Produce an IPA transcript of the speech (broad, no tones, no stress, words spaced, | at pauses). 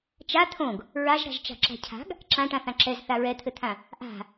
t͡ʃa t̪ʰõɡ | ɹaʒɾa̤ʒt͡ʃa̤ ǁa̤cʰa̤ɡ | ǁãʈãθã ǁɛz θaɹɛt̪ʰɘt̪ʰã | ʔa̤